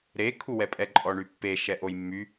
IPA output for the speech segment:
ɾ e kʰ u w ɛ pʼ ɛ ǃʼ ɔ ɳ y pː e ʃ ɛ ʔ o j mː y

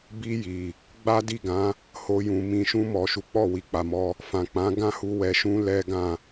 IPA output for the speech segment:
b i˧ j i˨ | ɡ͡b a˦ d i˦˨ ɡ ã˨˦ | h o˧ j ũ˨ m ĩ˨ ʃ ũ˧ m ɔ˨ ʃ u˨˦ k͡p ɔ˦˨ w i˨ k͡p a˨ m ɔ˧ | f ã˨ k͡p ã˨˦ ɡ ã˦˨ h u˧ w ɛ˨ ʃ ũ˧ l ɛ˦ ɡ ã˦˨

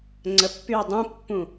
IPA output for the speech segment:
ŋ͡ǀ ə pː y ə̯ dˤ ũ pː ũ

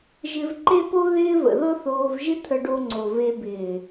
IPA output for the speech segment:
ʒ ɪ˧ v ǃ e˦ p o˦ ð ɪː˦ v ə̰˨ ð ɤ˦ θ oː˧ v ʒ ɪ˦ t̪ʰ ə˧ ɖ o˧ ŋ͡ǀ o˨ v e˧ b ɪː˨

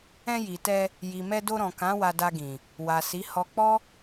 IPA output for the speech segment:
ɛ̃˧ j i˨ t ɛ˧ | j i˨ m ɛ˧ d o˧ ɾ ɔ̃˨ k ã˨˦ w a˧ d a˧ ɡ ĩ˨ | w a˨ s i˨˦ h ɔ˧ k͡p ɔ˦

